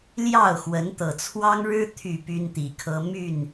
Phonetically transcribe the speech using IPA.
l j ɑ˥˨ ʊ̯ x w ə˨˦ n t̪ ɤ˨˩ t͡sʰ w ɑ˦ ŋ ɻ ɻ̩˦ t̪ʰ y˥˨ p y˦ n t̪ i˨˩ kʰ ɤ˦ m y˥˨ n

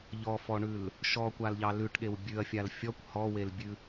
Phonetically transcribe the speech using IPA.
ʎ ɔ f ɔ ɳ ʉ l | ʃ ɔ kʷ a l ʎ ɑ l ʉ ʈ ɠ e w bʲ ʉ ɐ̯ fʲ a l fʲ ɔ kʷ h ɔ w e l bʲ ʉ

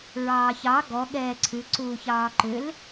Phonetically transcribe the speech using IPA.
ɹ ɑː ç ɑ ɡ ɔ ɠ ɛː ǀʰ ʉ ǀ uː ç ɑː ǃ ʏ l

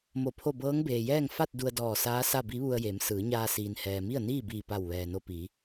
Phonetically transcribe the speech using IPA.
m o˧˩ pʰ o˥˨ b ɤː˧˥ ŋ b eː˩ j ɛː˥˨ ŋ f a˥˨ t̚ d u˧ ə̯ d ɔː˧˩ s aː˧˥ s a˥˨ b i˧˥ ʋ u˧ ə̯ j e˩˧ m s ɯː˩˧ ɲ aː˧ s iː˩ n h ɛː˩ m i˥˨ ə̯ n iː˥˨ b iː˧˩ p a˧˩ w ʋ ɛː˩ n o˧ p i˩˧

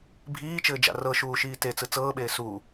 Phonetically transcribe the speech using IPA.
bʱ iː t͡ʃ ɘː d͡ʒ a̰ r ɤ ʃ uː ʃ iː t e t͡s ɯ t͡s ɤː ɓ eː s u

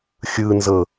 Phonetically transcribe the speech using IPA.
xʲ ɯ n z ɤ

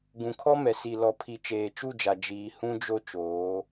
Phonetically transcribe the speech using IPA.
ɡ ũ˨ kʰ ɔ˦ m ɛ˨ s i˨ l ɔ˨ pʰ i˨ t͡ʃ eː˨ t͡ʃ u˦˨ d͡ʒ a˨ d͡ʒ iː˨ h ũ˦ d͡ʒ o˦ t͡ʃ oː˨˦

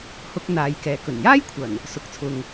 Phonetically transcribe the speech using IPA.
h ʊ˧ k̚ n̪ aː˨˧ j k ɛː˨˥ k ɵ˨˩ n j aː˥ j kʷʰ ɐ˨˩ n | s ʊ˨ k̚ t͡sʰ ʊ˨ ŋ

